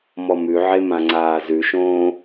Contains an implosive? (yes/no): no